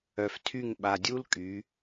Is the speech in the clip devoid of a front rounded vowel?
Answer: no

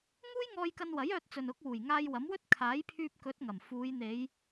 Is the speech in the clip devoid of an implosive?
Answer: yes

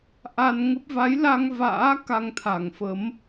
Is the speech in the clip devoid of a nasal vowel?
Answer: yes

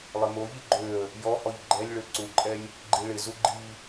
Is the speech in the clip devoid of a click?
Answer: no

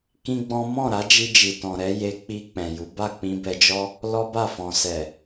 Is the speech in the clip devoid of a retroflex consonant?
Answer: yes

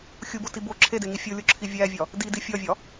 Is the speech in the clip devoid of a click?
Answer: no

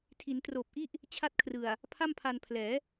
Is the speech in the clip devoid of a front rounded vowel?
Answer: yes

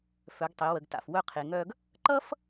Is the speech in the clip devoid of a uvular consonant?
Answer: no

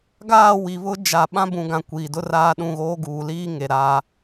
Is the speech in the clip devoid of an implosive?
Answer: no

